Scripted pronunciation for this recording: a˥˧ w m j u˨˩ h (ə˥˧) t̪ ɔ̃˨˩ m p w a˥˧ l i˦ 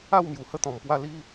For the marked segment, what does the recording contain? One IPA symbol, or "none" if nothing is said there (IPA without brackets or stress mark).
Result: ə˥˧